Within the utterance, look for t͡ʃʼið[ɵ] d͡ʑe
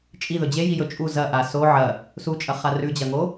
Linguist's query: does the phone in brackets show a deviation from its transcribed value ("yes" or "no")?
no